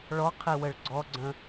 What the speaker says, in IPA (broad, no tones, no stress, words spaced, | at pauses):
ɭɔqʰi wəɭɡ͡ǀɔɡ͡ǀə̃